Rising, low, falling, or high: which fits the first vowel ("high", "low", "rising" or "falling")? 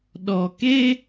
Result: low